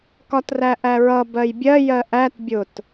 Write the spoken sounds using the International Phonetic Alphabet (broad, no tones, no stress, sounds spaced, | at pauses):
k ɒ t r æ ʔ æ ɹ ʌ b ɜ j bʲ ɜ j ɜ ʔ æ t bʲ ʊ t